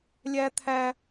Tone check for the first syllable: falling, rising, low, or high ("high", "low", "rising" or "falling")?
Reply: high